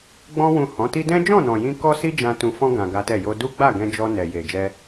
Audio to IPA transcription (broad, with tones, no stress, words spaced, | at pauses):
ɡ͡bɔ̃˧wũ˨ hɔ̃˨˦ti˦ dɛ̃˦d͡ʒɔ̃˦˨nɔ̃˨jĩ˧ kɔ˦si˦d͡ʒã˧ tũ˧fɔ̃˦ ɡã˧ɡa˦tɛ˦˨ jo˧ du˦ɡ͡ba˦˨ɡɛ̃˧d͡ʒɔ˧ nɛ˨je˨ d͡ʒɛ˧